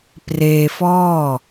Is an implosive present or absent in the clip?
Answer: absent